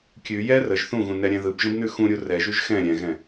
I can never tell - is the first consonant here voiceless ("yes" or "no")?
yes